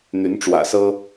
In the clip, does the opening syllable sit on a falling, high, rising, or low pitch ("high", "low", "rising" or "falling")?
rising